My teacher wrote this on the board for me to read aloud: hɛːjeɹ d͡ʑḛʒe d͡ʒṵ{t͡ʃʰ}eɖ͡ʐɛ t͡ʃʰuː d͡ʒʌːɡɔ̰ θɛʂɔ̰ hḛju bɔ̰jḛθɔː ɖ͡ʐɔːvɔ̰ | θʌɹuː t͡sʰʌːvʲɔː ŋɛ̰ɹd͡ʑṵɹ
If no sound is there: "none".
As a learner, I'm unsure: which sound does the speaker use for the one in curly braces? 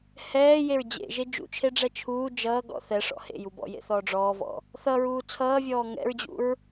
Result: t͡ʃʰ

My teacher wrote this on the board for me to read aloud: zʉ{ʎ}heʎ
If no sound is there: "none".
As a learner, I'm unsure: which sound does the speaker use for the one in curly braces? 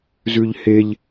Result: ʎ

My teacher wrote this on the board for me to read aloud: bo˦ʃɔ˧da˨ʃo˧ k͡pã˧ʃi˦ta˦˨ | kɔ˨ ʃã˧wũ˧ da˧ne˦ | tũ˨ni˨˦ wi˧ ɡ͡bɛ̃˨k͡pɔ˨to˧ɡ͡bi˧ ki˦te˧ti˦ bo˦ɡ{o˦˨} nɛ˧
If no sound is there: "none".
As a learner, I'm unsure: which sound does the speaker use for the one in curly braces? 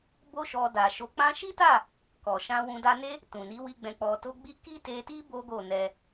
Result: o˦˨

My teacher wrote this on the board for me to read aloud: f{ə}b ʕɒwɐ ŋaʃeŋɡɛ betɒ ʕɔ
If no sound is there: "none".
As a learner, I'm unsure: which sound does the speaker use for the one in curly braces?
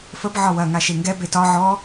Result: ə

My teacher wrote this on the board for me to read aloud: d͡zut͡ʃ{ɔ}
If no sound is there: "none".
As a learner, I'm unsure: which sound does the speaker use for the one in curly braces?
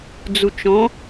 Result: ɔ̃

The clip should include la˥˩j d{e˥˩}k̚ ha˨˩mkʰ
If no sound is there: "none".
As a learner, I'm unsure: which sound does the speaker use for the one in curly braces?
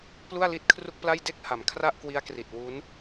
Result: e˥˩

